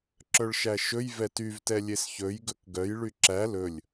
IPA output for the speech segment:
ǁ œ ɭ ʃ æ ʃ ɵ j v ɛ t y v t ɛ lʲ e s ç ɵ j ɡ ɵ k ɡ œ j ɭ y ǁ æ l ɵ lʲ

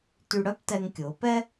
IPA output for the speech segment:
t y˧ ɽ œ˥ p t ɛ˧ ŋ kʲ ʊː˩˧ p ɛ˥

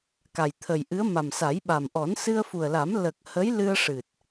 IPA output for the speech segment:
k a˨˩ j t̪ʰ ə˨˩ j ʔ ɨ˧˥ ə̯ m a˨˩ m s a˨˩˦ j ɓ a˨˩ m ʔ ɔ˨˩˦ n s ɨ˧ ə̯ f u˨˩ ə̯ l a˨˩˦ m l ə˨˩ k̚ h ə˧˥ j l ɨ˧ ə̯ ʂ ɨ˨˩ t̚

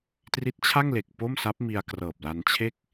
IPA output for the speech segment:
t r i˦˥ t̚ t͡ɕʰ a˥˩ ŋ l e˨˩ k̚ p o˥˩ m s a˦˥ p̚ m i˧ a̯ k r ɤː˨˩ p̚ l a˧ n t͡ɕʰ e˥˩ k̚

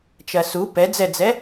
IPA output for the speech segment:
t͡ʃ ɐ s u p ɛ d͡z ɛ d͡z ɛ

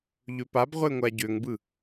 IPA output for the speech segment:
ʎ ø p a b ʁʷ e ŋʷ a ɟ ø ŋ b ɯ

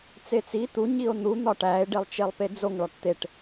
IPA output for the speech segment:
t͡s e t͡s i t̪ u ɲ i o̯ n̪ u n̪ ɒ ʈ æ e̯ ɖ e lˠ t͡ʃ e lˠ p e d͡z o ŋ ɭ ɒ ʈ t̪ e ʈ

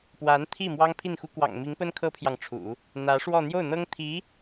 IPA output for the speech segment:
p w a˧˥ n t̪ʰ i˥˩ m w ɑ˥ ŋ pʰ i˥˩ n x u˥ k w ɑ̰˨˩ ŋ m i˧˥ ŋ p ə˥ n kʰ ɤ˥ pʰ j ɑ˨ ŋ ʈ͡ʂʰ ṵ˨˩˦ | n̪ ä˧˥ ʂ w ɔ˥˧ n̪ j o˥˩ ʊ̯ n̪ ɤ˥ ŋ t̪ʰ i˧˥

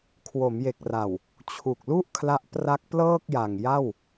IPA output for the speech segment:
kʰ w o˩˦ m j e˨˩ k̚ r a˨˩ w | t͡ɕʰ u˨˩ k̚ l u˥˩ ʔ kʰ l a˦˥ ʔ p r a˦˥ k̚ p l ɤː˥˩ k̚ j a˨˩ ŋ j a˥˩ w

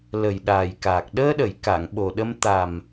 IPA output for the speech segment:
l ə˨˩ j ɗ aː˨˩ j k aː˨˩ k̚ ɗ əː˧ ɗ ə˨˩˨ j k a˨˩˨ ŋ ɓ o˨˩ ɗ ə˧ m t̪ a˨˩ m

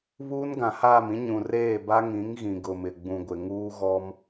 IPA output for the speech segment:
β uː˦ n ɡ ã˨ h aː˦˨ m ĩ˦ ɲ ũ˨ r eː˦˨ b a˦ ŋ ĩ˨˦ ŋ ɣ ĩ˨ ɡ ʊ˨ m ɪ˨ ɡ͡b ũ˨ ɡʷ ɪ˨ ŋ uː˦ ɣ ɔ˦ m

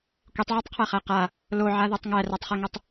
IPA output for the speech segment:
kʷ i tˤ ʕ e tˤ qʰ æ χ æ q a | l o ʕ a ð o tˤ ŋ æ r æ tˤ χ e ŋ u tˤ

